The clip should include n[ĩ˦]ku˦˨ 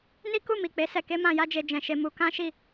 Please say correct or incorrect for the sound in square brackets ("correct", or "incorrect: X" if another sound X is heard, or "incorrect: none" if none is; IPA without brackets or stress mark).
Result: incorrect: i˦